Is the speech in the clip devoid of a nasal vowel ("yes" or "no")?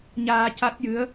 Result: yes